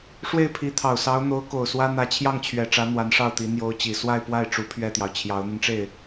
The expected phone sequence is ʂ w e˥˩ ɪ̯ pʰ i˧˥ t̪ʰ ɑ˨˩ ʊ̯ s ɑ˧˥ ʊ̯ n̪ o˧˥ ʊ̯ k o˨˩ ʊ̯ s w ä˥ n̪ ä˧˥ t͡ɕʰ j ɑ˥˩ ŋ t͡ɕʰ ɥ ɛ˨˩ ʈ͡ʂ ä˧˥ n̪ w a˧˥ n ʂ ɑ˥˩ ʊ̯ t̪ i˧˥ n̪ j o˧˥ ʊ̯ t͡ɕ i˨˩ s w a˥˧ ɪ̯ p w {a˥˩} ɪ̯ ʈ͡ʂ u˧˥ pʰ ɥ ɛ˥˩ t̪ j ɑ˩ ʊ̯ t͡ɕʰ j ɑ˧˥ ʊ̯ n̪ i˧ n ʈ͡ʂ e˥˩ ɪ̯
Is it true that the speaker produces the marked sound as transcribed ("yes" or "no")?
yes